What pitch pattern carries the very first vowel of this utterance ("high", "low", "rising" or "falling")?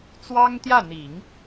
high